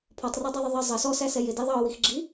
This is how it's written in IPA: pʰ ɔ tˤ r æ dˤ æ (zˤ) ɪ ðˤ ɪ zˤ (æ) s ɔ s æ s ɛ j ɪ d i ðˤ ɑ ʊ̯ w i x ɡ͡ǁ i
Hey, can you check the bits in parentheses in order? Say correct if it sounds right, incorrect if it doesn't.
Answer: incorrect: ðˤ, incorrect: ə

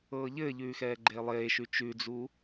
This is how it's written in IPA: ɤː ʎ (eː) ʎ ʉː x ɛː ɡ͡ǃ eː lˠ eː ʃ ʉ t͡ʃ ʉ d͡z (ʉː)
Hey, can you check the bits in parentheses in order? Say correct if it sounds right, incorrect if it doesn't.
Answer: incorrect: ɘː, incorrect: uː

